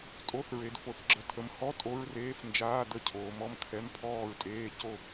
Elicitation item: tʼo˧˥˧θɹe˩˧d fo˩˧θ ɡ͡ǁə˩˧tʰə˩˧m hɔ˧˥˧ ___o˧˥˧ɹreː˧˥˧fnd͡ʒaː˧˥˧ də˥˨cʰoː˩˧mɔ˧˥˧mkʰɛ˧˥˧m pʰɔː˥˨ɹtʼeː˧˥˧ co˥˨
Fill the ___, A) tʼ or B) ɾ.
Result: A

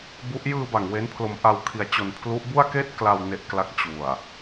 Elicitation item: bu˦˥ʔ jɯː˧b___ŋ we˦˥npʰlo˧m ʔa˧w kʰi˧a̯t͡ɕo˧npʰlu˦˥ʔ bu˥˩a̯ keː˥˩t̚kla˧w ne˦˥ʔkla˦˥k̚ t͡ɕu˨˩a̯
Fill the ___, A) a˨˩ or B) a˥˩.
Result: A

